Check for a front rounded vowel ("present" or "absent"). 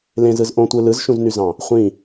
present